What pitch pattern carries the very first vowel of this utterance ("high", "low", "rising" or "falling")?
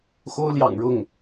high